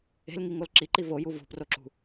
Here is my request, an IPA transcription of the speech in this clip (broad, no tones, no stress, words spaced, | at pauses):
e̤lŋiŋol ǁiǃi voju vṳproǁṳ